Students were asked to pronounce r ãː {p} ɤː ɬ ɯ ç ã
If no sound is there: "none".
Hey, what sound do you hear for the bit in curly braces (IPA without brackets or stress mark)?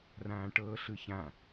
ʈ